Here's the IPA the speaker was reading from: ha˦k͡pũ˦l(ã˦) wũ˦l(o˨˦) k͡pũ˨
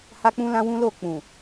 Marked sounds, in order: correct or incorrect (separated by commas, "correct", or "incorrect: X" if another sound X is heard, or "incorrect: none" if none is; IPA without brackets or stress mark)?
correct, incorrect: o˦˨